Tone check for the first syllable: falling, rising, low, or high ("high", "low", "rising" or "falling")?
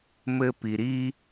high